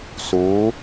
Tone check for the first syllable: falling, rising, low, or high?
rising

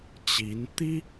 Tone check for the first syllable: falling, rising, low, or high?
rising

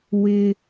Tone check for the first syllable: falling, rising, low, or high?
high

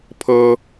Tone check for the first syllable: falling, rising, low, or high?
high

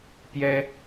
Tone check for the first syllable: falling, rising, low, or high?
high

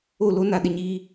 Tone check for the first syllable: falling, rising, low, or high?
falling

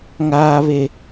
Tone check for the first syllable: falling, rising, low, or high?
low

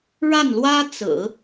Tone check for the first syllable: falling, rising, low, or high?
falling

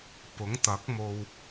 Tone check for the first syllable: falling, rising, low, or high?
rising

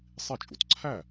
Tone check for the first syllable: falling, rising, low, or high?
falling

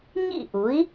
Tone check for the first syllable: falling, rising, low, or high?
falling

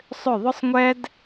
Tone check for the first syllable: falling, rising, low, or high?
falling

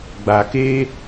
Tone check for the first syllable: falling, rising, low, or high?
low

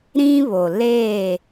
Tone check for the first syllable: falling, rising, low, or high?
high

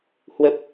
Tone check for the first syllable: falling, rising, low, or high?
low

